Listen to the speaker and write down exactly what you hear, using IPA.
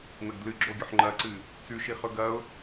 n ɐ ɡ d l ɨ ɡ͡ǁ o ɡʲ ɵ ħ ŋ͡ǃ ɐ ǀ ɨ | t͡s ʉ ʃ i χ ɵ ɡ ɐ ʊ̯

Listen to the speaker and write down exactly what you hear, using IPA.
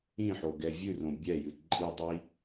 ĩ ħ o ɡ ɛ vʲ ʉ r õ bʲ ɛ j ɨ ǃʼ i dˤ i

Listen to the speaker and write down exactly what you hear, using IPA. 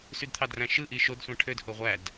s y d t̪ʰ ɑ d r æ̃ ʃ ɯ ʔ i ʃ o d sʷ æ̃ ʈʰ ø d h o ʁʷ æ d

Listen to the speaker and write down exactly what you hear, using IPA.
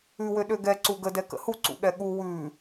ʉ w ø ɗ ø ɡ ɛ ǀ u ɡ ə d ɛ k ə̰ h u ǀ ṵ ɠ ɛ ɠ u w ʉ

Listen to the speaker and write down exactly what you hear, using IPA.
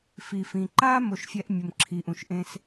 f i˩ f ĩ˩ ǃ aː˥ m o˩ ʃ fʲ ɛ˨ ʔ mʲ ʊ˩ m ǁʰ i˩ ʔ ũ˩ ʃ ʔ ẽ˨ s

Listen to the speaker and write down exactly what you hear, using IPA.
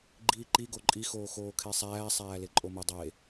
ɡ͡ǃ iː ǃ i ɡ o ǃʼ i x oː x oː kʰ e sˤ æː sˤ æː l e ǃʼ o m u dˤ e

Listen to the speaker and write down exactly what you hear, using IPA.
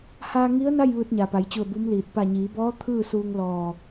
h aː˧ ŋ i˧˥ ə̯ n a˥˨ j ʋ ɯː˧ t̚ ɲ a˩ p a˩˧ j t͡ɕ u˧˩ ə̯ b u˧˥ m l iː˧˩ t̚ p a˧˩ ɲ iː˩˧ b ɔː˧˥ t̪ʰ ɯː˥˨ s uː˧ ŋ l ɔː˧˩

